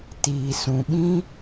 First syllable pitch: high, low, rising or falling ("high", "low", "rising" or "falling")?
low